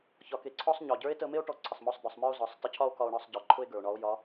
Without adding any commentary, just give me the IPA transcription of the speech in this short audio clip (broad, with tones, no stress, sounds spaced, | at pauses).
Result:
ç ɒ˩˧ k e˩ ǀʰ ɔ˥ sˤ ɲ ɒ˩ ɟ ə˞˧˥ e̯ t ə˧ m e˥ o̯ ʈ ɔ˧ ǀʰ ə˩ sˤ m ɔ˧ sˤ d̪ ɒ˩˧ sˤ m ə˞˥ o̯ z ɒ˩˧ sˤ t ə˧ cʰ ɒ˥ o̯ k ɒ˧ o̯ ɳ ɒ˧ sˤ ɟ ə˞˩ ǃʰ ʊ˥ e̯ ɡ ə˞˩ o̯ ɳ ɒ˧˥ o̯ j ɒ˧˥